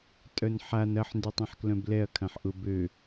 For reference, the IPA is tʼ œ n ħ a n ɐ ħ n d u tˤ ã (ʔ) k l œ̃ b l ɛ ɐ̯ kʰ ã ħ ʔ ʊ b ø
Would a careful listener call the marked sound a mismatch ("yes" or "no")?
yes